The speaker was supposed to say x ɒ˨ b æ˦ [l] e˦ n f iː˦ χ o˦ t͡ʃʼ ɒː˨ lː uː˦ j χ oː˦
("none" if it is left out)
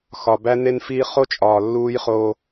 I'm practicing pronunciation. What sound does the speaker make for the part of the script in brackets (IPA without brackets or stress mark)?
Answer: n